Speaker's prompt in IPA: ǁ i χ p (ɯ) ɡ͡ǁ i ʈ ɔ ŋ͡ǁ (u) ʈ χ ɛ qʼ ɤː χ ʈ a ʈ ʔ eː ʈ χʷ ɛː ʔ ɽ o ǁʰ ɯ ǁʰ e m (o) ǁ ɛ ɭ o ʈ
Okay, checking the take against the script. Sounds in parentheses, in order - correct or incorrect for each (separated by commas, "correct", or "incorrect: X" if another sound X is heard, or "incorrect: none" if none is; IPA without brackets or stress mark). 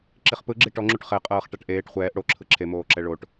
correct, correct, incorrect: oː